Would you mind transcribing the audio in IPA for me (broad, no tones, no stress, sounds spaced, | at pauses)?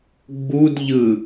ɡ͡b u d ʎ ɯ